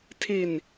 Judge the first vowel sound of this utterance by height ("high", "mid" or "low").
high